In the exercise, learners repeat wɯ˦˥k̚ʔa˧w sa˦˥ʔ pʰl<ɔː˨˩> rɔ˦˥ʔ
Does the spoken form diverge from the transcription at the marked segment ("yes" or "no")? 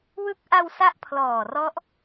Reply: no